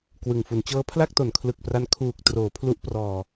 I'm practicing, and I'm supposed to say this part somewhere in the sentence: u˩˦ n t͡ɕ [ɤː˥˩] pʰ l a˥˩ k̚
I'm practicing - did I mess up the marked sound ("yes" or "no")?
yes